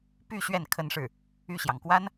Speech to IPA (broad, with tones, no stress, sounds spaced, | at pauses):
p y˥˧ ɕ ɥ ɛ˥˩ n kʰ ə˥ n ʂ ɻ̩˥˩ | y˥˩ ɕ j ɑ˩ ŋ k w a˥ n